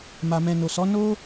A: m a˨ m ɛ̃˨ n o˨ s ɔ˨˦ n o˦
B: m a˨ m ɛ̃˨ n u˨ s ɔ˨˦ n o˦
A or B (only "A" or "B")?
A